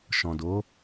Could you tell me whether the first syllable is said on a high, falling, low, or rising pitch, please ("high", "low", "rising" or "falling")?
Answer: low